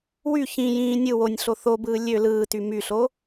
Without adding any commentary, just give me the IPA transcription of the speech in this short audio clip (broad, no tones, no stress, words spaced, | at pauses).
wy çĩ jĩː nʲɯ wonʲɬo θobɯː lʲø lɯːty myɬo